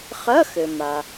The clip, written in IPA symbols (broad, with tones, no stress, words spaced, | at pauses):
χɐ˧˥˧xɘ˩ ma˩